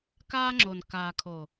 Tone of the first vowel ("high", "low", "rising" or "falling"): high